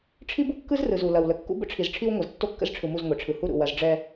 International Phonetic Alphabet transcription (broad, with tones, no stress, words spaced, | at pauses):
ʈ͡ʂʰi˦bu˦kːɯ˦zrɯ˨z u˨ lɐ˨wlə˨ kːṵ˦bə̰˦ʈ͡ʂʰi˨z ʈ͡ʂʰi˦wŋʷɐ˨z tːo˦kːə̰˦zʈ͡ʂʰɯ˨mu˦˨z ŋʷe˨ʈ͡ʂʰɯ˨ hu˦ɾṵ˨ wɐ˦z ɖ͡ʐɛ˦